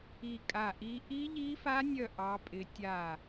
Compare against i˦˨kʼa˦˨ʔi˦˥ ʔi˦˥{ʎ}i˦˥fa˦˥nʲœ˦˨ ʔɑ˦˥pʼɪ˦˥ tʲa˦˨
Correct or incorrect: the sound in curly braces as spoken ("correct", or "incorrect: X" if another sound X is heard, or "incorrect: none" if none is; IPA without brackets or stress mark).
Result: correct